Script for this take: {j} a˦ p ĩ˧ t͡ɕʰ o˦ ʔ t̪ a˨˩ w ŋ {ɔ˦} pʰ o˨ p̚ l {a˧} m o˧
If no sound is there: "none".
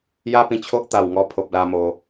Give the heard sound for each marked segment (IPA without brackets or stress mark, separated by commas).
j, ɔ˧, a˧